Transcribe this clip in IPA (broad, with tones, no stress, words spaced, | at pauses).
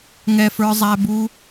ŋɛ˦fə˞˦zˤæ˦bu˦